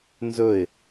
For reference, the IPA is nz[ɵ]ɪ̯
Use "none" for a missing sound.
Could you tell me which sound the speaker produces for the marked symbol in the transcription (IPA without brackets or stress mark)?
ɵ